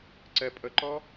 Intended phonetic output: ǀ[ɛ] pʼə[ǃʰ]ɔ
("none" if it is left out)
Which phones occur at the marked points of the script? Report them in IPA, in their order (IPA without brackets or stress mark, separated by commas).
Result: ɛ, ǃ